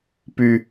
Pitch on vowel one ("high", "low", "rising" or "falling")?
low